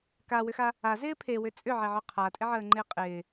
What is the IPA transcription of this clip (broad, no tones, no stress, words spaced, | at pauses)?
kawʏxa | azɪː pʰewʏ t͡sʼʏʕeʕœ qʰatʼɪʕəːŋ͡ǃɪː qʼɪː